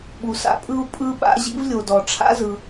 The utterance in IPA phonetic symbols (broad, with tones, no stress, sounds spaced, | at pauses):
ɓ u˩ s a̰˥ pʼ ɯ˥ u̯ pʼ ɯ˥ ɓ a̰˥ ʑ ḭ˥ v lʲ o˩ d ɔ˩ ʈ͡ʂʰ a̰˥ z ɯ˩